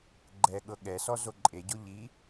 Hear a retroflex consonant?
no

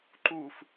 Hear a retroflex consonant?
no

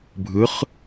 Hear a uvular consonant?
yes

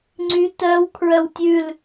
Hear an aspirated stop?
yes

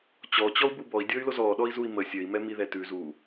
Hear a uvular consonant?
no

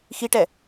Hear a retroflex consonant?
yes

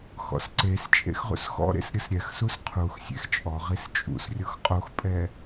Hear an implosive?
no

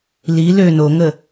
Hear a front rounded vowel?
yes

